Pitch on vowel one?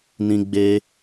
high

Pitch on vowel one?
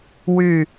falling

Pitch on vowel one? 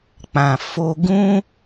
low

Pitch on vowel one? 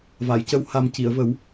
low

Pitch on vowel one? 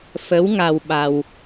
rising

